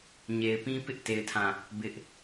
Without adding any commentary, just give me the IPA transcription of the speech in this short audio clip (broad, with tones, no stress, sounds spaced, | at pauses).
ɲ e˨ ɪ̯ p ĩ˦ p ɪ˦ ʔ t e˦ ɪ̯ tʰ ã˦˨ | b ɪ˦ ʔ